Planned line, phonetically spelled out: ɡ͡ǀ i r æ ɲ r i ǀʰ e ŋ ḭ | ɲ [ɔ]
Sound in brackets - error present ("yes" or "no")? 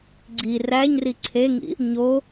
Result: yes